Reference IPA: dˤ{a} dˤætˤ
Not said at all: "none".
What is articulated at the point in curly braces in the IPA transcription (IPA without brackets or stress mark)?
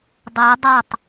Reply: æ